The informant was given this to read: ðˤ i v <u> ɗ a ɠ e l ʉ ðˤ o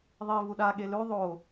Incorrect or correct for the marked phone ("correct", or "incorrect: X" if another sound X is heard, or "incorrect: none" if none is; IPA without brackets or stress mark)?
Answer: correct